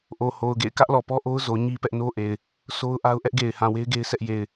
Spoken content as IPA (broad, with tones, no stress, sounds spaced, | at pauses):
ʔ o˨ h o˨ ʊ̯ ɡ ḛ˦˨ ɪ̯ k ä˦ ʔ l ɔ˨ p ɔ˦ ʔ o˦ ʊ̯ z o˨ ɲ i˦ p ɛ˦ ʔ n o˦ ʔ e˨ ɪ̯ | s o˦ ʊ̯ ʔ a˦ ʊ̯ ʔ ɛ˦ ʔ ɡ e˨ ɪ̯ h ã˨ w e˦ ɪ̯ ɡ e˦ ɪ̯ s ɛ˦ ʔ j e˨ ɪ̯